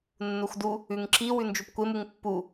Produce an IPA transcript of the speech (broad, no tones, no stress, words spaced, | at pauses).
nːuxdu | ʉŋǁi wʉnd͡ʒupkʷem uŋpːu